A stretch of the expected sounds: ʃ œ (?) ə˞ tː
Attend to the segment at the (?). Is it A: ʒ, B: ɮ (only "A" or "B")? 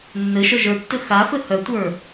A